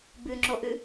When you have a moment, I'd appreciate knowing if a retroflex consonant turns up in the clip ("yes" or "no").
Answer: no